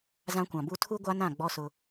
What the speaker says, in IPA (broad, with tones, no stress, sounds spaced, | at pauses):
z ã˦ kʷ ã˨ b u˦ tʰ u˦ ɡʷ a˦ n ã˦˨ ɡ͡b ɔ˦ s ʊ˦